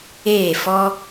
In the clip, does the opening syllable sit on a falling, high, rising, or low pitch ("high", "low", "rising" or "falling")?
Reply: falling